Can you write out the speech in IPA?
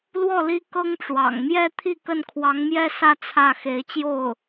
l w ɔ˥˩ l i˥ k ɤ˥ ŋ ʈ͡ʂ w ɑ̰˨˩ ŋ m j ɛ˥˧ t̪ʰ i˥˧ k ə˥˩ n kʰ w ɑ˧˥ ŋ m j ɛ˥ s ä˥˧ t͡sʰ ä˥˩ x e˧˥ ɪ̯ t͡ɕ j o˥˩ ʊ̯

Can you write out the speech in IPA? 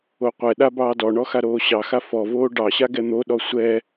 o qʷ ɛ ɗ a b ɑː d ɔ ɳ ɔ x a ɾ oː ɕ ɑ x a f ɔ v oː ɖ ɑ ɕ a ɡ ɛ n̪ o ɗ ɔ sʷ ɛ

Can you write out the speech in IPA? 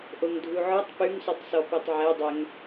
ʔ o ŋ dʱ u ʕ ɔ tˤ p ʉ ŋ s ʉ tˤ s ɔ p i tˤ ʕ ɛ dˤ ɛ ŋ

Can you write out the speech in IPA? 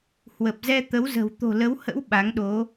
h w ə˨˩ p̚ z ɛ˧ t̪ ə˨˦ w z ə̤˨˩ w t̪ o̤˨˩ l ə˨˦ w h ə̰˧˥ w ɓ a˨˦ ŋ ɗ o˨˦

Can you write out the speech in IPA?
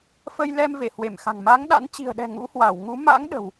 f ə˧ j l ɛ˧ m v e˧˩ h w e˧˩ m x a̤˨˩ ŋ m a˨˦ ŋ ɗ a̰˧˥ n t͡ɕ i̤˨˩ ə̯ ɗ ɛ̤˨˩ ŋ ṵ˧˥ h w a˧˩ w ŋ u˨˦ m a̰˧˥ ŋ ɗ ə̤˨˩ w

